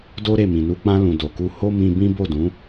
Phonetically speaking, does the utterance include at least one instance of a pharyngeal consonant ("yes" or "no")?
no